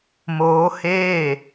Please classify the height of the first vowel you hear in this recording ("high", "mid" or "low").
mid